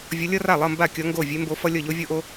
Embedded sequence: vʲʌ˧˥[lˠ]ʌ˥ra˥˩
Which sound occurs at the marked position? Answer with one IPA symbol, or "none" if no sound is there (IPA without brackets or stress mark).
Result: lʲ